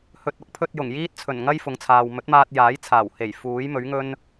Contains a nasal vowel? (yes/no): no